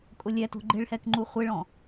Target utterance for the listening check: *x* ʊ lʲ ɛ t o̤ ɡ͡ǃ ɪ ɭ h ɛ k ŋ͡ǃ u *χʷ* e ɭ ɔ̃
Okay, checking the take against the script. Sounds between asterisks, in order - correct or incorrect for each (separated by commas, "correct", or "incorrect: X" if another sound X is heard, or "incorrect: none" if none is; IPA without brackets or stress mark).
incorrect: kʼ, correct